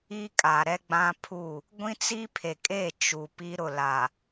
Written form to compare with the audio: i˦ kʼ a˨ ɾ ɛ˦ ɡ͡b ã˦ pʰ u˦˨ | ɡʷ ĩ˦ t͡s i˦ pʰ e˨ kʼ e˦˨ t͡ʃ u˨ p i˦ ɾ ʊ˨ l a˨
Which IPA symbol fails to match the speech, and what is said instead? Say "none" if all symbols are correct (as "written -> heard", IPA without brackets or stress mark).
none